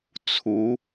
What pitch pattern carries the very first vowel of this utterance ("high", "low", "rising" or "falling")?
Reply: rising